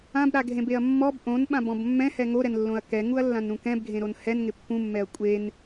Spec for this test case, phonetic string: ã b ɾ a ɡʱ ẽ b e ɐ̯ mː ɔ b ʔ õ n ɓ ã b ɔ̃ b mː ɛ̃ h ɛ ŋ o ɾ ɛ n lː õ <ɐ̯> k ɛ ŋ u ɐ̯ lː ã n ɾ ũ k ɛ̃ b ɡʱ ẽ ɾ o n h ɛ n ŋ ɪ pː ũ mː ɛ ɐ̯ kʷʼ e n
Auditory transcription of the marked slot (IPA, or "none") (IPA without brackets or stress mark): ɐ̯